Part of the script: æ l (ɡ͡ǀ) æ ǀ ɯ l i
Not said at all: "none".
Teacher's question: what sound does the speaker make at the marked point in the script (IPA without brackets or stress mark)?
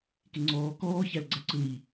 ɡ͡ǀ